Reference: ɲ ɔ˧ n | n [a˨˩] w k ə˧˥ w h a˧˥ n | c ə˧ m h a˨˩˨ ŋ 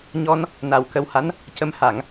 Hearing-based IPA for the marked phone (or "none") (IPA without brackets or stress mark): a˨˩